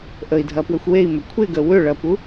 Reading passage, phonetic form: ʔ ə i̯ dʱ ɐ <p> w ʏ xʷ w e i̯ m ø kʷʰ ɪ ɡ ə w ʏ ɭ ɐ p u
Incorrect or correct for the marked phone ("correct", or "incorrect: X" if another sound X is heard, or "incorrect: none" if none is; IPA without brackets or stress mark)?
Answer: correct